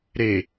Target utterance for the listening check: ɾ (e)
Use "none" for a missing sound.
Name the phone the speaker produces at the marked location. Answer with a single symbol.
e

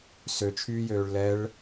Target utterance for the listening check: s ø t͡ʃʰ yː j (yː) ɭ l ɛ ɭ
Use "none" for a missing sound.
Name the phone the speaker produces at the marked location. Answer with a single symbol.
øː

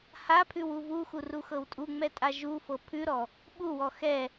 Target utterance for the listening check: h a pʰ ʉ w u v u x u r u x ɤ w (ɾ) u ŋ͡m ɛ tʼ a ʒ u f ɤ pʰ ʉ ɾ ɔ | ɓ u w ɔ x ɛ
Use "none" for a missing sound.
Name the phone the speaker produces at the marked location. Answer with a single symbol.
tʼ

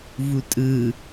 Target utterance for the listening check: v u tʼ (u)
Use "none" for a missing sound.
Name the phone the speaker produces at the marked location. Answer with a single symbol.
ɯ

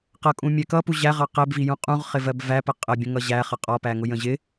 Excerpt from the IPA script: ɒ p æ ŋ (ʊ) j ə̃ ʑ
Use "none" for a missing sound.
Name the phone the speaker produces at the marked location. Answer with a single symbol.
ʊ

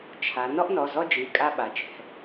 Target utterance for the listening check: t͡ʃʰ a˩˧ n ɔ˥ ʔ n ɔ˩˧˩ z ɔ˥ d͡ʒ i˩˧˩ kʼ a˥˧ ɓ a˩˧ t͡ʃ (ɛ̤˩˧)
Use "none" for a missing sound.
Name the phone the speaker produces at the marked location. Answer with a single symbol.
ɛ̤˩˧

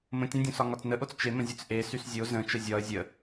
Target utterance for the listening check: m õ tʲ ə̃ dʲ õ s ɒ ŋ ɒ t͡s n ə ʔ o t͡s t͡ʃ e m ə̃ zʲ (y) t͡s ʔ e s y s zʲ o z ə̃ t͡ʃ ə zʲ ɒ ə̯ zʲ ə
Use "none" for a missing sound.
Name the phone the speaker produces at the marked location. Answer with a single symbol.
ø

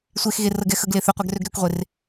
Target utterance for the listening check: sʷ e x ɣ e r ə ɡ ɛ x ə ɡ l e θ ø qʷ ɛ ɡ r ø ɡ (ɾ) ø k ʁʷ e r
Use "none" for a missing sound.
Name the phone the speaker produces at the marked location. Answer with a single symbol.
ɾ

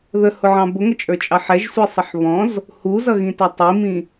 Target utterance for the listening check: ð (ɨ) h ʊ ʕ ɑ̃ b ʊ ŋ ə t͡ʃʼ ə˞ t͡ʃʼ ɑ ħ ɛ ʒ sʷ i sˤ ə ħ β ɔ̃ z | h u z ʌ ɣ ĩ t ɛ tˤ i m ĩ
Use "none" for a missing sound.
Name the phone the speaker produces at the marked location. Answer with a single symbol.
ə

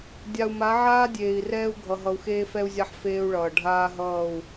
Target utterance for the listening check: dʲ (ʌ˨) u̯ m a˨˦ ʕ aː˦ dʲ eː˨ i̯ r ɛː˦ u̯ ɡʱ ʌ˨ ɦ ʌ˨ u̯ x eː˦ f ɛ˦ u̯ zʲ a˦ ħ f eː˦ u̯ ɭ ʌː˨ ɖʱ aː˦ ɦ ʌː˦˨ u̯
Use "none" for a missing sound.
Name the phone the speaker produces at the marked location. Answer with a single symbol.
a˨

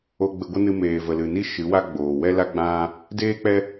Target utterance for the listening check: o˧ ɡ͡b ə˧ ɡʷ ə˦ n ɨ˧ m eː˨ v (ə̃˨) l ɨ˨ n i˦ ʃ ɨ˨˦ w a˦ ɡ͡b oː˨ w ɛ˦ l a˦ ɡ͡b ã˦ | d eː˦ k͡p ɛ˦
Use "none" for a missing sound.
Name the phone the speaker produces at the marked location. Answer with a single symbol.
ə˨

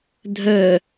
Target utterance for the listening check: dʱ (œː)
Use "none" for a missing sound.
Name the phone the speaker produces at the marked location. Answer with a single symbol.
œ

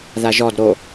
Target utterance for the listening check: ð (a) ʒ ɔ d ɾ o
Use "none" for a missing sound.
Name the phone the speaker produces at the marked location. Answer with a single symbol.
a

